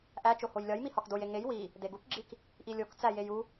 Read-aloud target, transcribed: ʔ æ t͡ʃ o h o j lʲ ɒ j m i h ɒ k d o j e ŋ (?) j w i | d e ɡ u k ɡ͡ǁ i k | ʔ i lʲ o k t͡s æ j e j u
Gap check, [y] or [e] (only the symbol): e